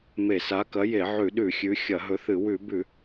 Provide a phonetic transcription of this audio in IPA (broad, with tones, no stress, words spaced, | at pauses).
me˧˩˧sa˨˥kɐ˨˥ je˧˩˧ʕʉ˧˩˧ɗʉ˧˩˧ xʲʉ˨˥ xʲɐ˧˩˧ɦɵ˨˥θɨ˧˩˧ wʉ˧˩˧bʉ˧˩˧